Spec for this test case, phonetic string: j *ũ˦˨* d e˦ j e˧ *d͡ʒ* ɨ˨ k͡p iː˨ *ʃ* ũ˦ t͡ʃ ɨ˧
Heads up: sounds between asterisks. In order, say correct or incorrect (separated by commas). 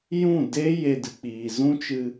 correct, incorrect, incorrect